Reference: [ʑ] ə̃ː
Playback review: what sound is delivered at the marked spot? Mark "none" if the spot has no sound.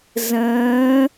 z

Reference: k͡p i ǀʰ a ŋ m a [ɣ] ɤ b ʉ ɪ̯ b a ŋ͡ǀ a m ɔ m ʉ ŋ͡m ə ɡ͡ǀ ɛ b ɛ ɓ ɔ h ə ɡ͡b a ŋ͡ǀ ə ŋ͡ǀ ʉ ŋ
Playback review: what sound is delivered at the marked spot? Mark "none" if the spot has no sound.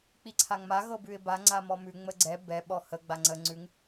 ɣ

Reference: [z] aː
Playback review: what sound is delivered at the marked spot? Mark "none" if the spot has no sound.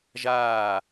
ʒ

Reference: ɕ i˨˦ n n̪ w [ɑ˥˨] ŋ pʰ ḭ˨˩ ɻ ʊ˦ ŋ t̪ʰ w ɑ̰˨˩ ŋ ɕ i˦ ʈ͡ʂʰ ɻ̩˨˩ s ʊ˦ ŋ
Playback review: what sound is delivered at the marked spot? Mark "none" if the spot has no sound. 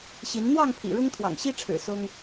ɑ˥˨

